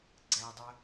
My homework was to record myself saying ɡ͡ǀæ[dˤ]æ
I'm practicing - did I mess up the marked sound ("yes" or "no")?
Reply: no